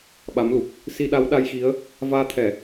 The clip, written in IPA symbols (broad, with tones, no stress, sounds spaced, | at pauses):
ɓ a˨˦ m l u˨˩ k̚ | s i˧ ɗ a˨˦ w ɗ a˧ j x i˨˦ ə̯ | v aː˧ t̪ʰ ɛ˧˩˨